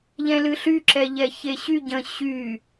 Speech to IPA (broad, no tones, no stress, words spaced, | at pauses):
ʎɛ̃lɨɬy ǁɛʎɛçeɕy ɟə̃ ɕy